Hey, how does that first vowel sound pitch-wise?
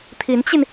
rising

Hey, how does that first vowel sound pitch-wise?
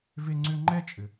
high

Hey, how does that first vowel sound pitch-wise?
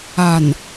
low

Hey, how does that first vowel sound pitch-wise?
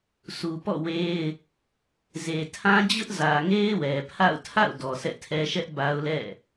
low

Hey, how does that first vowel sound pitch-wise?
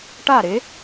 falling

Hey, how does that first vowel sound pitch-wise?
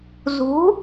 rising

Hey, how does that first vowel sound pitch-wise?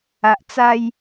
low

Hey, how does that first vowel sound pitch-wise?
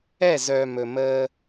falling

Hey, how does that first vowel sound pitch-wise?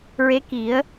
rising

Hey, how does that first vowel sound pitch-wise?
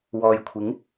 low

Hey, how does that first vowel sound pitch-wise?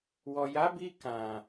low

